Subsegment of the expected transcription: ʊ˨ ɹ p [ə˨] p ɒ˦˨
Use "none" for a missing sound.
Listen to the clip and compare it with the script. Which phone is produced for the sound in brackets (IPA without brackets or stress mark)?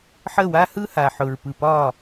ɯ˨